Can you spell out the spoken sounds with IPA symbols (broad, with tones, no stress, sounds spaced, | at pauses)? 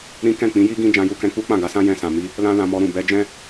ɾ ĩ˦ k ɛ̃˦˨ k͡p ĩ˨˦ j i˦ ɡ ĩ˦ d͡ʒ ã˦ j u˦ k ɛ̃˦ k͡p u˦ k͡p ã˦˨ ɡ a˧ s ã˦ j ɛ̃˧ s ã˨ m i˧ | l ã˦ l ã˧ m ɔ˧ ɾ ũ˨ b ɛ˧ d͡ʒ ɛ̃˦